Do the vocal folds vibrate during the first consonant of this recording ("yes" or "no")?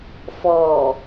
no